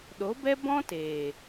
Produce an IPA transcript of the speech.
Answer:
ɗo˨˦bɛ˦ bɔ̃˦teː˨

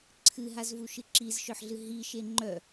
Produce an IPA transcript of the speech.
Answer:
ǀʰɨɦazvuʃɨ ǁizʃœħɮɨ ɦiʃe ŋ͡ǃœ

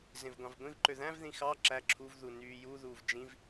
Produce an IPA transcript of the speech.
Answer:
zẽvɡʷɑ̃vɡʷĩvǃø ðæ̃vðĩ xɑ ǁæ ǁʰuvðu nyːjuðuːv d͡ʒĩv

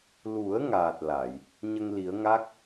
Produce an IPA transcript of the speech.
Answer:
lu˨˩˦ə̯ ŋaː˨˩t̚ la˨˩˨j | ɲə˧ŋli˨˩˦ə̯ŋa˦˥k̚

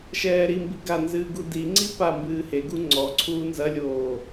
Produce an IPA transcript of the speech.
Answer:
ʃɛːɾimbi ɡanzɨː ɡudiŋ͡ǀi pambɨː heɡu ŋ͡ǀɔǀʰuː nzɐlʲoː

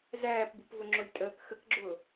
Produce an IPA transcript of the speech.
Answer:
zæːpbupvʊŋ͡ǁʊlʲ tʼəːk xəkɡ͡ǁʊː

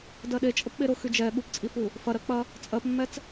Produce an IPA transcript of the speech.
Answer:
dɜɗe t͡ʃʼəpɓeɾʊ xyd͡ʒɛ ɠupt͡sʼifu | fɐɾɜk͡pɐ | t͡sʼɜpmːɛt͡s

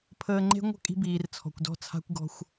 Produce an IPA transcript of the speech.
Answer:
pʰəː˨ŋ͡ǃe̤˦ŋʷə̤˦˨ kʼi̤˦biː˨rt͡sʰɔ̤˨kʷdɔ̤˦ t͡sʰa̤˦kʷɡɔ̤˦xʷ

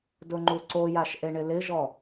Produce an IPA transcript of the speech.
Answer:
dʊŋ͡ǃuǀojaʃ ʔeɳɪlɪʒɔ

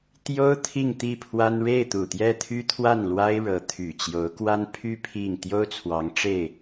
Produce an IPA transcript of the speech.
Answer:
t̪jo˥ʊ̯ t̪ʰi˥˧ŋ t̪i˥˩pʰwa˥n ɻe˥˩ɪ̯t̪u˨˩t̪jɛ˥˩ t̪ʰy˥t̪ʰwa˥˩nlwa˥ɪ̯ɻɤ˧˥ t̪ʰy˨˩t͡ɕjo˧˥ʊ̯kwa˥npʰy˥ pʰi˥˩ŋ t̪jo˥ʊ̯t͡sʰwɑ˧˥ŋ ʈ͡ʂe˥˩ɪ̯

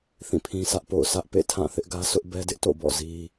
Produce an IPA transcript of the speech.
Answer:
θĩ˦˨pʰĩ˦sʰä˦ʔpo̰˦˨ʊ̯ sʰä˦ʔpḛ˦˨ tʰã˦˨θɪ˦ʔɡä˦ sʊ˦ʔbɛ˦dɪ˦ʔto̰˦˨ bɔ̰˦˨ zi˦

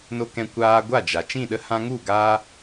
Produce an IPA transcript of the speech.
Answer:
no˧ kɛ̃˧kʷaː˧ɡʷa˦˨d͡ʒa˨ t͡ʃĩ˦˨ɗə˧ hã˧ŋu˦˨ ɡaː˧

